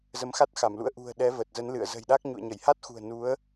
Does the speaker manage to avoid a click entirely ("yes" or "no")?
yes